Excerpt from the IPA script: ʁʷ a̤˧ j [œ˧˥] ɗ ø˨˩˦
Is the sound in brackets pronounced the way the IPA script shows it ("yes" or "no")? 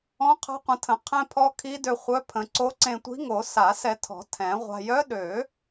yes